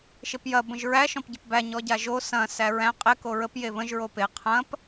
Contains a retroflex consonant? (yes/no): no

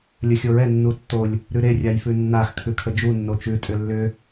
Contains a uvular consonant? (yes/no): no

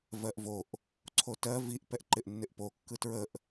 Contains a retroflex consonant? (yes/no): no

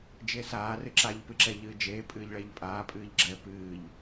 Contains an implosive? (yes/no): no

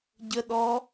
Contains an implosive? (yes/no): yes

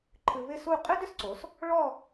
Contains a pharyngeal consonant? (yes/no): no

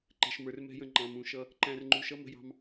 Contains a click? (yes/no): yes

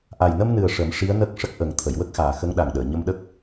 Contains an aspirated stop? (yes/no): yes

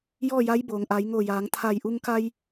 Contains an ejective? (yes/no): no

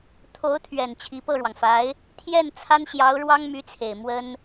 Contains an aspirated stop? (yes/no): yes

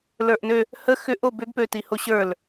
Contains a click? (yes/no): no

